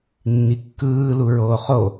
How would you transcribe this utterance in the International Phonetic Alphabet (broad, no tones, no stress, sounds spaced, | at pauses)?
nː i kː ɯː l u ɹ oː χ o